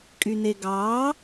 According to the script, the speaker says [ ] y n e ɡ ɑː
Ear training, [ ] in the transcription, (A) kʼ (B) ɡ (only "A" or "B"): A